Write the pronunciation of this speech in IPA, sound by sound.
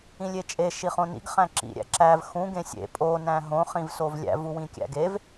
ĩ lʲ e t͡ʃʼ e ʃ i χ õ n ḭ ɡ χ æ̃ ǁ ḭ ɾʲ æ̰ ǁ æ v x ũ ɡ ẽ sʲ ḛ pʼ o n æ̃ ɦ õ χ ĩ v s o v lʲ æ̰ v u w ĩ kʲ æ̰ ɡ e v

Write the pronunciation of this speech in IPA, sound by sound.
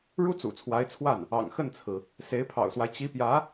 ɻ u˥ t͡s ṵ˨˩ t͡sʰ w a˧˥ ɪ̯ t͡sʰ w a˥˩ n | ɑ̰˨˩ ŋ x ə˥˩ n t͡sʰ ɹ̩˩ | s e˧˥ ɪ̯ pʰ ɑ̰˨˩ ʊ̯ s w a˦ ɪ̯ t͡ɕ i˧˥ p j ä˧˥

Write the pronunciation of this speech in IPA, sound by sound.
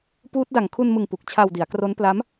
p uː˦˥ t̚ d a˨˩ ŋ kʰ u˧ n m ɯ˨˩ ŋ p u˨˩ k̚ t͡ɕʰ a˧ w d i˩˦ a̯ k r o˦˥ n p l a˦˥ m

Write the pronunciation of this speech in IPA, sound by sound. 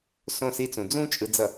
s õ˦˨ s i˦ t͡s ũ˨ d͡z ũ˦ t͡ʃʼ ɯ˨ d͡z ʌ˨

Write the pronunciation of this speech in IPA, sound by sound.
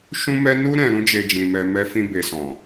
ʃ ũ˦ m ɛ˦ n u˦ ɾ ɛ̃˧ ɾ ũ˦ d͡ʒ e˧ d͡ʒ ĩ˨ m ɛ˨ m ɛ˧ f ĩ˧ b e˨ s ɔ̃˨

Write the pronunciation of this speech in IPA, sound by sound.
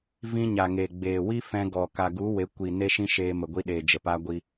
v ĩ˧ ɲ a˨ ŋ eː˨ ɡ͡b eː˨ w i˦ f ɛ̃˧ ɡ ɔ˨ k a˨ ɡ u˨˦ w e˨˦ kʷ i˨ n e˦ ʃ ĩ˦ ʃ eː˧ m ə˨ ɡʷ i˧ ɗ eː˨ d͡ʒ ə˨ p a˧ ɡʷ i˧

